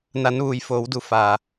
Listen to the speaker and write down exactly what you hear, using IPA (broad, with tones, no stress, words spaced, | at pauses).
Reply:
na˩˧nʋuː˩j foː˩˧wdu˩˧ fa˩